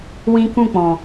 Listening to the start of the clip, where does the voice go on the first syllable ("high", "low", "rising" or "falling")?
high